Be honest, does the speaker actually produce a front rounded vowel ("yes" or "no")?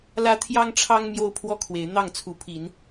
no